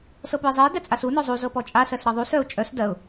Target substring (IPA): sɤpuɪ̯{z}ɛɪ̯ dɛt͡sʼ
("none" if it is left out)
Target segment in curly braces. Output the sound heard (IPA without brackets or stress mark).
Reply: zˤ